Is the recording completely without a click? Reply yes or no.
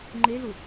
no